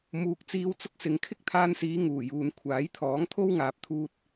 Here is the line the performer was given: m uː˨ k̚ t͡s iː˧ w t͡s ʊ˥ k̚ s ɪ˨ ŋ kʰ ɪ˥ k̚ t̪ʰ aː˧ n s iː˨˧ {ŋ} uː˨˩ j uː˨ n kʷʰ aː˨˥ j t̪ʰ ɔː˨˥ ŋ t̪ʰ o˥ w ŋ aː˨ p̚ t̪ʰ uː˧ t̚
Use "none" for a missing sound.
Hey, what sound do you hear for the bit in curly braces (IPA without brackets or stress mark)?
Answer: ŋ